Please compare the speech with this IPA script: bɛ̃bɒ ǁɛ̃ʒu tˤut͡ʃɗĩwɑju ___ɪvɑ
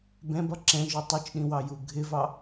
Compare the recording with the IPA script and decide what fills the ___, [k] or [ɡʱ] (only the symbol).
ɡʱ